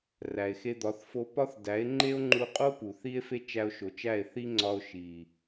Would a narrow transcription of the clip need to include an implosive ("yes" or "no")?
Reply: no